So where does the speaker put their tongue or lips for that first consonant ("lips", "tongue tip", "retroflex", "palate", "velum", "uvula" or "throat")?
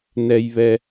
tongue tip